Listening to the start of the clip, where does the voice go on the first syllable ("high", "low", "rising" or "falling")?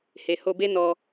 low